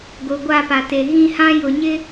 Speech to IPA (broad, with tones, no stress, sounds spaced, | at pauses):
ɡ o˨ ɡʷ a˦˨ p a˨ t e˨ ɣ ĩ˦ h ã˦ j ʊ˨ ɲ ɪ˦